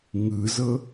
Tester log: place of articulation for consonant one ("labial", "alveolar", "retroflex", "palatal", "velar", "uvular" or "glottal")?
velar